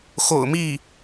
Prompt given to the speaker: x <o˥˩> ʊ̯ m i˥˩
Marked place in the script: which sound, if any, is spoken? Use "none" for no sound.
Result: o̰˨˩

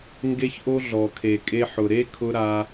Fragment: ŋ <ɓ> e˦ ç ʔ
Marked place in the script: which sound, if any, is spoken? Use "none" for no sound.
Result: ɡ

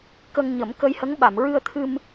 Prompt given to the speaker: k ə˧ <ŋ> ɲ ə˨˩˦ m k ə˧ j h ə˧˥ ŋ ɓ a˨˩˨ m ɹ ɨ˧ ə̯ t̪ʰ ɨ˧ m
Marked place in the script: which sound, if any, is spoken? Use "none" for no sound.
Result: ŋ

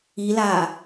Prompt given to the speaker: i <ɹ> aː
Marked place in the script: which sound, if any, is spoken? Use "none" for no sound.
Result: l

